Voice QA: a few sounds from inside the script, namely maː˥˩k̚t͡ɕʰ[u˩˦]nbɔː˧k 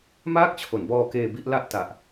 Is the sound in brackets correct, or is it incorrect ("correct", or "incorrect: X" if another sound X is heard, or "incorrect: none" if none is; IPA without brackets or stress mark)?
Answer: incorrect: o˩˦